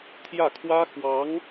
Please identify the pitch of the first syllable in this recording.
falling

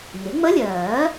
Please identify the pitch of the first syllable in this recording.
rising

